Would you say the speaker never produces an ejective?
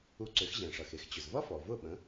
yes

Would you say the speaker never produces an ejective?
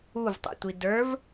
yes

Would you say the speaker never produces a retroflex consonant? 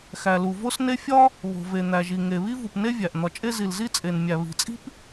yes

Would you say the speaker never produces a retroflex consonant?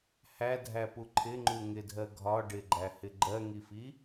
no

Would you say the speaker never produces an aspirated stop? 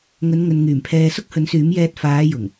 no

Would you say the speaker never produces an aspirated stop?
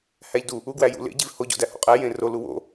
yes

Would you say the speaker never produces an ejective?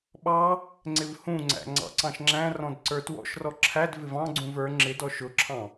yes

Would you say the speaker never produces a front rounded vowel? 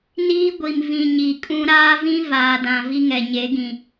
yes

